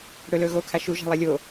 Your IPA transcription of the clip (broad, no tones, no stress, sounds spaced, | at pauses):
ɽ ɵ l ɵː ɣ oː kʰ a ʃ u ʒ a̤ lˠ e lʲ oː